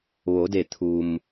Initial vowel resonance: oral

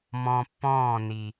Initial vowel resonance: nasal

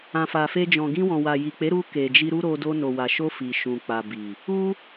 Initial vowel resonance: nasal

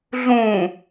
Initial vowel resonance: nasal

